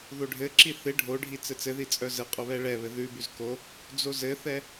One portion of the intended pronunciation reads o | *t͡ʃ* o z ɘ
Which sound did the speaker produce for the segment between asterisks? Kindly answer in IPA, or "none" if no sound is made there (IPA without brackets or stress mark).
d͡z